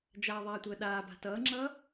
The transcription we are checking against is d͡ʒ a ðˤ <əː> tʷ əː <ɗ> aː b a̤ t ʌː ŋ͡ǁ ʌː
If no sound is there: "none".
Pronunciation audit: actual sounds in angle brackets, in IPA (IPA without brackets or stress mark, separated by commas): aː, ɗ